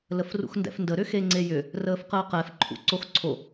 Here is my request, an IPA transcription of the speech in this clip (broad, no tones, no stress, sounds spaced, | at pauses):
l ə f r ṵ x n d ɛ̰ f n d ə ɾ ʏ x e ŋ͡ǀ e j ʏ | r əː f q əː q ɛ f ǃʰ ṵ ǀ o x ǀʰ o